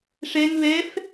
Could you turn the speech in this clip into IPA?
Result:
ʂ ɛ ŋ β ɛ f

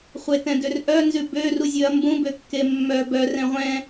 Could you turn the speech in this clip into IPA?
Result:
χʷ e t ɛ̃ d ø r ʔ œ n z ʉ b ø r u zʲ ʉ ɐ̯ m b ũ b ø kː e mː œ b œ r ɛ̃ ʁʷ ɛ̃

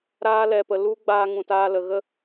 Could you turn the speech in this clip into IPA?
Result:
ɾ aː˧ l ɛ˨ p ə˨ l u˧ ɡ͡b aː˧ ŋ ũ˨ t aː˧ l ə˨ ɣ ə˦

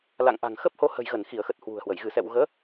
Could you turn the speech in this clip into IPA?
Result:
l a̰˧˨ ŋ ʔ a̤˨˩ ŋ x ə˦˥ p̚ h o˧ h ə̤˨˩ j ɣ ə˧˩ n x i˧˩ ə̯ x ə˨˩ t̚ h w ṳ˨˩ ə̯ h w ə˧˩ j ɣ ɨ˧˩ s ɛ̰˧˨ w ɣ əː˨˦

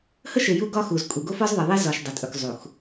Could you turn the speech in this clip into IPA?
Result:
h ə˦ ʃ e˨ j u˦ ɡ ɒ˦ x u˨ z kʼ u˨ ɡ o˦ f ɒ˦ z ðˤ e˨ ðˤ e˦ z ɒ˨ ʃ dˤ ɐ˨ tʼ ɵ˨ k zˤ u˨ x

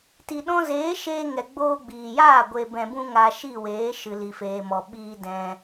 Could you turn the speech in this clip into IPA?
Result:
t i˨ ɗ ɔ̃˧ z eː˨˦ ʃ eː˧ ŋ ɛ˨ ɡ͡b oː˧ ɡ͡b iː˨ j aː˦˨ ɡʷ e˨ b ɛ̃˨ b ũ˧ ŋ a˧ ʃ i˦˨ w eː˨˦ ʃ ɨ˨ l i˨ f eː˨ m ɔ˨ ɓ iː˧ d ɛ̃˧

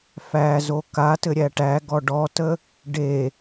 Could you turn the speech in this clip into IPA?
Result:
f æ z o k a t ɘ ɾʲ æ ʈ æ ɡ ɔ ɖ ɔ t ə | ɖ e

